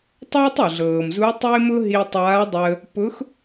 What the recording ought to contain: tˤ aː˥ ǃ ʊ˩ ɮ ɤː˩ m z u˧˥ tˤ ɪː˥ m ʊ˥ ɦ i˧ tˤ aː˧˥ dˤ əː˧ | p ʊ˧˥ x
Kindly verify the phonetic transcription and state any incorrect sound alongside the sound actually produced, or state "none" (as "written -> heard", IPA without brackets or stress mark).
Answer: ǃ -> tˤ